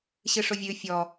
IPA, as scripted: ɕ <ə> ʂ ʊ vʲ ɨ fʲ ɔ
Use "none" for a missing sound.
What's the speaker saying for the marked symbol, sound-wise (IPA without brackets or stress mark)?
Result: ɨ